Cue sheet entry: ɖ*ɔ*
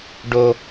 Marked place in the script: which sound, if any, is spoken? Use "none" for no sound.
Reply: o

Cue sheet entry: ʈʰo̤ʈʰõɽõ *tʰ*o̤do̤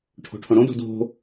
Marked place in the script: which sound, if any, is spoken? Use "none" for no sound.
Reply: d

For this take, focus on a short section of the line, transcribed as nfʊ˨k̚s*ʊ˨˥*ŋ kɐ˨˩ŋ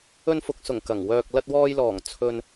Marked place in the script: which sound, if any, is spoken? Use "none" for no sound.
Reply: ʊ˨˩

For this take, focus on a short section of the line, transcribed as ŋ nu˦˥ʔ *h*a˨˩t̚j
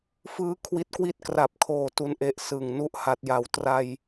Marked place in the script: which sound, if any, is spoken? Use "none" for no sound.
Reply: h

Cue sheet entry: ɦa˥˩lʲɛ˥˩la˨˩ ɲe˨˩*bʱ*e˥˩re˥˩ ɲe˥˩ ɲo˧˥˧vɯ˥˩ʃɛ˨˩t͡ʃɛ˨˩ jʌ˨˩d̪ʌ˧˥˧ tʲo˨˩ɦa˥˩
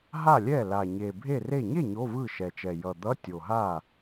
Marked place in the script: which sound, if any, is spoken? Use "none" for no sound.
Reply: bʱ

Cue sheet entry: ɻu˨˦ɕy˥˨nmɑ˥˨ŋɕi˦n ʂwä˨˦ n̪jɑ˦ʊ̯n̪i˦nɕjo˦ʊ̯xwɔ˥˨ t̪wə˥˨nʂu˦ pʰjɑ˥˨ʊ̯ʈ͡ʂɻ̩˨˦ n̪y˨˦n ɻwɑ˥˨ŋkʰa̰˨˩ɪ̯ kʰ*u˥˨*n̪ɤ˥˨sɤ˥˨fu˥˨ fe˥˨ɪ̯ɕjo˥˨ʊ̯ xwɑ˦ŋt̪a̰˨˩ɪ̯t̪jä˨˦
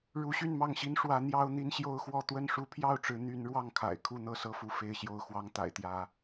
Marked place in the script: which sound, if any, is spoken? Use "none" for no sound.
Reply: u˥˨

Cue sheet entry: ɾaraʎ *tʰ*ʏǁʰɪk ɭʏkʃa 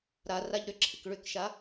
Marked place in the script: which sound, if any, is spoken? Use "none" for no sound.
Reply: ɾ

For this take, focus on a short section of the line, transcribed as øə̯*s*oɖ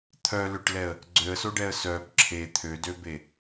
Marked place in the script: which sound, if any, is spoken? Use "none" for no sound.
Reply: s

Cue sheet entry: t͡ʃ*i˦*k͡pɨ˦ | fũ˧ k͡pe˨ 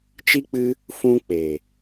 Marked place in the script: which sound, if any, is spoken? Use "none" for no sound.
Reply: i˦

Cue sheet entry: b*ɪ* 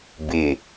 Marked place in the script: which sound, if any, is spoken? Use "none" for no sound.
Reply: ɪ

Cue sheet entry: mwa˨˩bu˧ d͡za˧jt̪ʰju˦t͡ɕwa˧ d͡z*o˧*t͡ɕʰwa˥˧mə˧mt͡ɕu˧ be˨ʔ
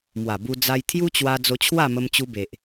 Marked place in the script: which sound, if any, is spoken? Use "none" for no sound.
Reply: o˧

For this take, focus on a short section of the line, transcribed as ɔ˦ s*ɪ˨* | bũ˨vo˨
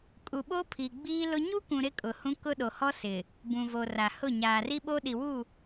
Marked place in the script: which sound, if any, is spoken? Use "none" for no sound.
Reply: ɪ˨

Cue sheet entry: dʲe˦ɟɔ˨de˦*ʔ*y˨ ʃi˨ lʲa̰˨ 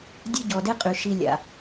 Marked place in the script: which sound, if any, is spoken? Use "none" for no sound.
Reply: qʼ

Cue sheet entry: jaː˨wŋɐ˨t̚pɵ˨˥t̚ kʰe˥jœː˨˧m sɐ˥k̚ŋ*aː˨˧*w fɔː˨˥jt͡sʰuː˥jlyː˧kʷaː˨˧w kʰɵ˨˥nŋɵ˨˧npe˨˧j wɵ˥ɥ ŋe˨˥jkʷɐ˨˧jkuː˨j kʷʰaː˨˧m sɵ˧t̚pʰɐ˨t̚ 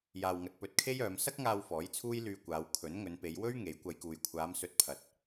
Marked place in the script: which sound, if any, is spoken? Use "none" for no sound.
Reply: aː˧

